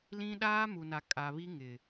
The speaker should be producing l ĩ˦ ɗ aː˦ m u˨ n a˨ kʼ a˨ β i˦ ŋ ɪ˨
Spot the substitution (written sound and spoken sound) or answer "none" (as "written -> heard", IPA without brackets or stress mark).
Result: none